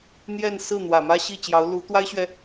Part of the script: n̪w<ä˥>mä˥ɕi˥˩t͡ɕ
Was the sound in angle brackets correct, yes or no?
no